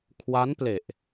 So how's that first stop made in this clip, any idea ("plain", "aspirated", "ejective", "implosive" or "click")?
aspirated